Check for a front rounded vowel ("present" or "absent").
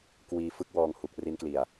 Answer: absent